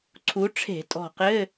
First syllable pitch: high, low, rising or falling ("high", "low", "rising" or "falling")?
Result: rising